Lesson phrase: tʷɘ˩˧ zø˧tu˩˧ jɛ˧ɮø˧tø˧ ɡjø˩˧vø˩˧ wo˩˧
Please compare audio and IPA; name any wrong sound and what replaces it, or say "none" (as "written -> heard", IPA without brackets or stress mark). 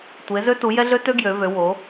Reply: ɘ˩˧ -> e˩˧